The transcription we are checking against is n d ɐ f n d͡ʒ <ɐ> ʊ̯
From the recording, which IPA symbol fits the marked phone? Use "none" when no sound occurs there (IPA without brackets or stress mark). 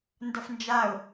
a